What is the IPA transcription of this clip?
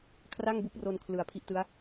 kʰ r a˥˩ ŋ b u˦˥ k̚ r o˧ n kʰ l ɯ˨˩ a̯ pʰ i˦˥ ʔ t ɯ˦˥ a̯

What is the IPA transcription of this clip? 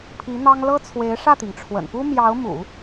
pʰ i˧˥ n̪ ɑ˥ ŋ l ɤ˥ t͡sʰ w e˧˥ ɪ̯ ʂ ä˥˩ t̪ i˩ ŋ ʈ͡ʂʰ w ə̰˨˩ n p u˥ m j ɑ˧˥ ʊ̯ m ṵ˨˩˦

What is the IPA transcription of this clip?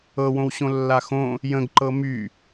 ɤ w õ w ɕ õ lː a x õ | j ə̃ ɡ ǃ ɤ m y

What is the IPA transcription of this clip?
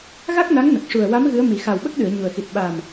ɣ a˦˥ k̚ n a˧˥ ŋ n ə˨˩ k̚ ʂ u˨˩ ə̯ w a˧˥ m ɣ ɨ˧˥ ə̯ m i˨˩˦ x a˨˩ w ɓ ə˦˥ k̚ ɗ ɨ˨˩˨ ə̯ ɲ u˨˩ ə̯ x i˨˩ t̚ ɓ a˨˩ m

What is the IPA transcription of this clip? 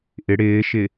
ʔ ɪ ɽ ɪː ʃ ɪ

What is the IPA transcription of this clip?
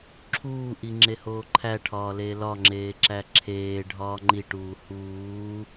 ǁʰ uː ʔ i ŋ͡ǁ e h oː ǃʰ æ ʈʰ ɒː l e l ɒ ŋ͡ǁ eː ǁ æ ǁʰ eː ɖʱ ɒː ŋ͡ǃ i ʈ uː h uː

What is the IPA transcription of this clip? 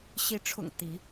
ɕ i˨˦ ʈ͡ʂʰ ʊ̰˨˩ ŋ t̪ i˨˦

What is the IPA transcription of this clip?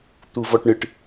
t̪ u v ɔ ʈ ɳ ɨ ʈ

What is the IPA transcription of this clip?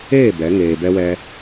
eː˦˨ b ɛ˨˦ ŋ eː˨ b ɛ˧ w ɛ˧

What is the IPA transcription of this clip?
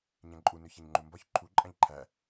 ɲ æ̃ ǃʼ u n ʏ ç a ɲ ŋ͡ǃ u m b ɒ ç ǃʰ u ǃʼ ã ʎ ǃʰ æ

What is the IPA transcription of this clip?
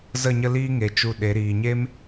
z ə˦˨ ɲ ə˦ l iː˦ ŋ e˨ t͡ʃ u˧ ɗ e˨˦ ɾ iː˨ ɲ e˦ m

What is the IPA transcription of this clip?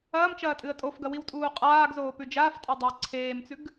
ɐː m t͡ʃ ɐː tʼ ɨ ə̯ tʼ o f ɡ ɐ w i w tʼ uː qʼ aː ɡ z oː p ʉ d͡ʒ aː f tʼ a dˤ a ə̯ ǀʰ eː m t͡s ʉ ɡ

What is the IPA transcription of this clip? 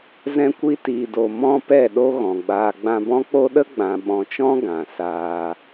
z ɛ̃˧ kʷ i˧ t iː˨ d o˨ m ɔ̃˦ p ɛ˦˨ ɗ o˦ ɣ ɔ̃˨ ɡ͡b aː˧ ɡ͡b ã˧ b ɔ̃˦ k͡p o˦ ɗ ə˦ ɡ͡b ã˨ ɓ ɔ̃˨ t͡ʃ ɔ̃˦ ɡ ã˨ s aː˧

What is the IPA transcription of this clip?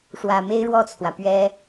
ʂ w ä˨˩ m e˥ ɪ̯ ɻ w ɔ˥˩ t͡sʰ w ä˩ p ɥ ɛ˥

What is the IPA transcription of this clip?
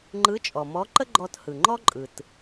ŋ͡ǃ ɯ˧˥ t͡ʃʼ ɔ˩ m ɔ˧˥ ǃ ə˥ ɡ͡ǃ ɔ˧ t h ɯ˩ ŋ͡ǃ ɔ˥ ǃʼ ɯ˩ t

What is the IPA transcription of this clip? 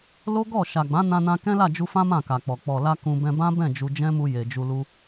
l o˦ ɡ ɔ˦˨ ʃ a˨ ɡ͡b ã˨˦ n ã˧ n ã˧ k ɛ̃˦ l a˦˨ d͡ʒ u˧ f ã˦ m ã˦˨ k a˨ k͡p ɔ˨ k͡p ɔ˨ l a˧ k ũ˧ b ɛ̃˧ b ã˦ b ɛ̃˦˨ d͡ʒ u˧ d͡ʒ ɛ̃˦ m u˧ j e˨ d͡ʒ u˧ l u˦

